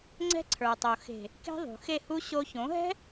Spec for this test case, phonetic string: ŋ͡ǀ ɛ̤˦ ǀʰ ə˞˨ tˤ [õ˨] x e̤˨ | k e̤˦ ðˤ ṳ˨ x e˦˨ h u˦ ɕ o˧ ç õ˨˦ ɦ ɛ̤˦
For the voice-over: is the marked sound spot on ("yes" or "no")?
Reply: no